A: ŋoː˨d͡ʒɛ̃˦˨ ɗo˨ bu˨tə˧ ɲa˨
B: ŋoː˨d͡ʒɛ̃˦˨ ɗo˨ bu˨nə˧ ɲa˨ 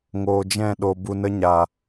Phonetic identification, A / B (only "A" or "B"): B